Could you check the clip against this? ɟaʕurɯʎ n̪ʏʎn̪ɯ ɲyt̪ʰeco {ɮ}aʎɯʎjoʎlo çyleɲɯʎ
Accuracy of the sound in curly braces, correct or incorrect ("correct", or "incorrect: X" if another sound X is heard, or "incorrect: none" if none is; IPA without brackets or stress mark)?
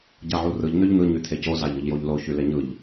incorrect: z